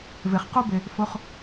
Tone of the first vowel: low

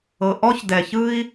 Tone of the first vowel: low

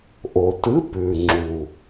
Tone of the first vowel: low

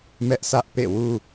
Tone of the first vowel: high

